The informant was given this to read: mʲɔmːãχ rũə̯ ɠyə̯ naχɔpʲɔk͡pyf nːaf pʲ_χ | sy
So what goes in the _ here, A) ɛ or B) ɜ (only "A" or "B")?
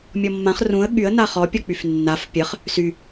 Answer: B